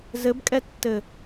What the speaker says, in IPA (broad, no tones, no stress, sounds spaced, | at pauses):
z ɘ b kʼ ɛ tː ɘ